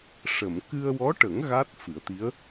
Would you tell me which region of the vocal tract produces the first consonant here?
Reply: retroflex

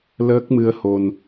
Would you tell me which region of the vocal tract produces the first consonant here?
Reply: tongue tip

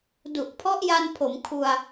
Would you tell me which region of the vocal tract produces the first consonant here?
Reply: tongue tip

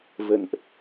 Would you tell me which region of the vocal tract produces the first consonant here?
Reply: lips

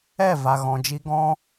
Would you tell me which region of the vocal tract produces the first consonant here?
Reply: lips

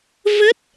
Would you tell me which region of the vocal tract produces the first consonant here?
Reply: lips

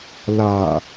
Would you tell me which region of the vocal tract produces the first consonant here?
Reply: tongue tip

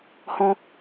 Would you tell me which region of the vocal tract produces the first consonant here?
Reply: throat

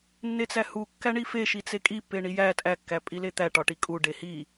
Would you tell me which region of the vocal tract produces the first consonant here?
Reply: tongue tip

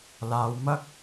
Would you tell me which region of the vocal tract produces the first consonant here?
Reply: tongue tip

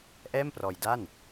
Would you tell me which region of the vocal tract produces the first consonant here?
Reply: throat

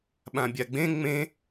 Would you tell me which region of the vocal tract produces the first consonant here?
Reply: lips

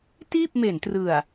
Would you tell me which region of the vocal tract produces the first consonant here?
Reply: tongue tip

